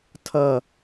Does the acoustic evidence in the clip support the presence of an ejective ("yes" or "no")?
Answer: no